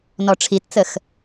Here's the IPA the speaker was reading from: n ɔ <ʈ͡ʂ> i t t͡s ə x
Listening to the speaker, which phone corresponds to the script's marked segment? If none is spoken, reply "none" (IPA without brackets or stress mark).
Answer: ʈ͡ʂʰ